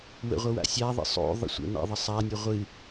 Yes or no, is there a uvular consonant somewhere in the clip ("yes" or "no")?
yes